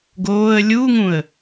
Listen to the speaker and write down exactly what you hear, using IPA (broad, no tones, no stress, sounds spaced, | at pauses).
ɡ oː ə̯ lʲ u ŋ ũ ə̯